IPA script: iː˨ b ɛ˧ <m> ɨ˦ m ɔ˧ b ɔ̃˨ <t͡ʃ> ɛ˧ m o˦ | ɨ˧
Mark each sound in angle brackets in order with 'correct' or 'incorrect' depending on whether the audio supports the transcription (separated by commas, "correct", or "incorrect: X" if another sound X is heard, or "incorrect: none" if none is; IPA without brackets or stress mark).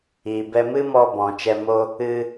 correct, correct